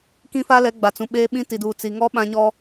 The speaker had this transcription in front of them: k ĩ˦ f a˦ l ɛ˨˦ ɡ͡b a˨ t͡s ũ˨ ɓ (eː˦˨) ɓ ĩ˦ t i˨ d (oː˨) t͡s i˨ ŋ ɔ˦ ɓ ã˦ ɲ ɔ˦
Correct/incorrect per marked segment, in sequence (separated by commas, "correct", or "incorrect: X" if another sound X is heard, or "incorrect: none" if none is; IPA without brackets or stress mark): incorrect: eː˦, incorrect: uː˨